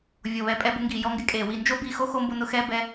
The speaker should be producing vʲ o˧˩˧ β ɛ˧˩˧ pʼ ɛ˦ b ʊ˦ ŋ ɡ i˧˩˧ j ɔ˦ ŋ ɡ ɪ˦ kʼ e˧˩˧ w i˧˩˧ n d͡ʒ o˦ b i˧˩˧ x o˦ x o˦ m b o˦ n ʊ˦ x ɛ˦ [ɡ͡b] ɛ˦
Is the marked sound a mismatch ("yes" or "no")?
yes